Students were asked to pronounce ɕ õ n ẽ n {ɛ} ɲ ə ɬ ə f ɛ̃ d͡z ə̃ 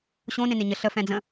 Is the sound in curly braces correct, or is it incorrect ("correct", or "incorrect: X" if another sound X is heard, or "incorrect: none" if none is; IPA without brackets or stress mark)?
incorrect: e